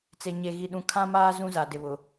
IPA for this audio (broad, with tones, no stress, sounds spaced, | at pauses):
t͡s e˨ ɲ e˨ ɣ i˨ ɗ ũ˨ kʰ ã˦ m aː˦ z ũ˦ z a˨ d ɪ˨ β ʊ˨